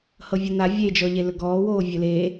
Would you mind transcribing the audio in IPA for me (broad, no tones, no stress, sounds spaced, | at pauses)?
h ɤ vʲ ɤ n a vʲ e d͡ʒ ɔ ʎ e l ɵ ɡ ɔː w oː vʲ ɵ l e